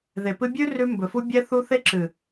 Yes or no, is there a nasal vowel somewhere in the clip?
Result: no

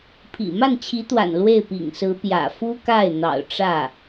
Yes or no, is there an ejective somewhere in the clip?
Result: no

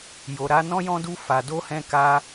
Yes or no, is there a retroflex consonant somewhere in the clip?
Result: no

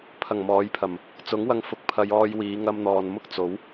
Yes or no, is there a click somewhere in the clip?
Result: no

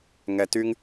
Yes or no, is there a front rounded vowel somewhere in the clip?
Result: yes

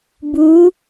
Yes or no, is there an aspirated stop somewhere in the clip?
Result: no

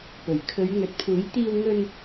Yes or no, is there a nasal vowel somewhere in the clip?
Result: no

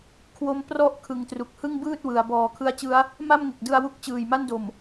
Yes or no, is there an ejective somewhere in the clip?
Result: no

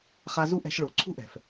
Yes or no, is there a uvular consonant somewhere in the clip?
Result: yes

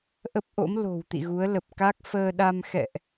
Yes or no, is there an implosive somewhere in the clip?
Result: yes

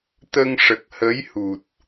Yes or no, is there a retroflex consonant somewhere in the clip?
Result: yes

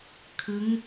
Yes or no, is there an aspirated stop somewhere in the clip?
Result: yes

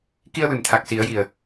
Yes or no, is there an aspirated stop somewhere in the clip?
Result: yes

